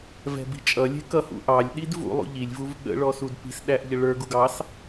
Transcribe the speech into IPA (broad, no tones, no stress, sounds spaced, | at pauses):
v ɛ̤ b i̤ t͡ʃʼ ʌ lʲ ɛ̤ k ʌ h ṵ ʔ ɑ lʲ ɗ i d v ṵ lˠ ṵ ʎ i lʲ v u v ɠ ə̰ ɭ ɔ s u d p i̤ s ɗ æ ʔ ʎ ə ɭ ə˞ ɡ u ɡ ɑ s